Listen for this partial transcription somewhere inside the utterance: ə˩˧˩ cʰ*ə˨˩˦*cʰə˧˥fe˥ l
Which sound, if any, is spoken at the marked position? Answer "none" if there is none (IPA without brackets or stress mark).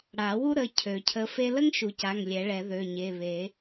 ø˨˩˦